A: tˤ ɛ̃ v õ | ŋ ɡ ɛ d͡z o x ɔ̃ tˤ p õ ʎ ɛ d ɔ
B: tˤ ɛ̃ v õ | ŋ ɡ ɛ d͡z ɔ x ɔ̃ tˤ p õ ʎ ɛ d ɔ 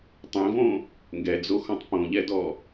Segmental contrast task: A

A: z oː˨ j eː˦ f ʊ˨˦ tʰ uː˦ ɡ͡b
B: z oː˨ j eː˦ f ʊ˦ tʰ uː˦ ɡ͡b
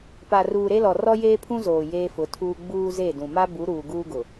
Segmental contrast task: A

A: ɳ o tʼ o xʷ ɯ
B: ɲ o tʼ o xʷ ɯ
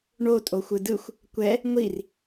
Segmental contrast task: A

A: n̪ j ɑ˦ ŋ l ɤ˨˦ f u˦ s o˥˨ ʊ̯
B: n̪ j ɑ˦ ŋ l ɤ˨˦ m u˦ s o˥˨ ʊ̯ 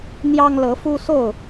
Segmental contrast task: A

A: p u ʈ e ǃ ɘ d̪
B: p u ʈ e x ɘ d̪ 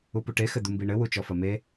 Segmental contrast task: B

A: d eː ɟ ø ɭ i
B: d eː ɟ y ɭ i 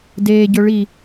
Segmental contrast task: A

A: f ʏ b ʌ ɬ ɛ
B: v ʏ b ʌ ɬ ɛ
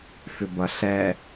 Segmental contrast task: A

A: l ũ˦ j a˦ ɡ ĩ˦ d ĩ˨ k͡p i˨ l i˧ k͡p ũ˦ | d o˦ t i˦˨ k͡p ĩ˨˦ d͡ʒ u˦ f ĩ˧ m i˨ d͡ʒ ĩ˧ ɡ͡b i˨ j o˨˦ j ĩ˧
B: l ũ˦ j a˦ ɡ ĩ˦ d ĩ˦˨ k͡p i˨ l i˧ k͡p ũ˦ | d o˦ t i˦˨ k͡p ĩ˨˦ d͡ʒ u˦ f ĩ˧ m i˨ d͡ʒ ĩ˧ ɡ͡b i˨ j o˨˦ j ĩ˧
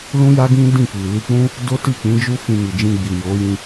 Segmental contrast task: B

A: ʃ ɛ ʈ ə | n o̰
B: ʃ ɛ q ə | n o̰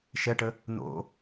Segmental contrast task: A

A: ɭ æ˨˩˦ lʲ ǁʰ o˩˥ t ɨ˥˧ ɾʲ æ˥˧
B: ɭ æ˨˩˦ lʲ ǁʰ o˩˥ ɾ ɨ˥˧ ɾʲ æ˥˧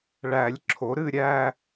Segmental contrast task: B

